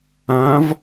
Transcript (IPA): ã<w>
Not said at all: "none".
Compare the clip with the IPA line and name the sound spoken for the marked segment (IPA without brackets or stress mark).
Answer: v